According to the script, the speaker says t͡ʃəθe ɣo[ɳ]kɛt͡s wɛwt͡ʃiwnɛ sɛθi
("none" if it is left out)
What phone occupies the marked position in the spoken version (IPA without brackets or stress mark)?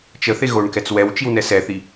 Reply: ɳ